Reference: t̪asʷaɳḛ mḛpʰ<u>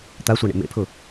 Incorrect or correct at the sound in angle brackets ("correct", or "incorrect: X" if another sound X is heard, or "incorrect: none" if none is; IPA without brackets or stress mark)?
incorrect: ʊ